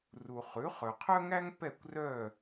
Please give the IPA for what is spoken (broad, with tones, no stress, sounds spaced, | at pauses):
r u˨ χ ʉ˩˥ χ œ˨ qʰ œ˥ ŋ æ˥ ŋ p ɛ˥˨ kʷ r œ˥˨